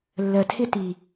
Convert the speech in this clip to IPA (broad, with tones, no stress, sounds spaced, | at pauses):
lː ɜ˨ tʰ ɪ˦ t i˨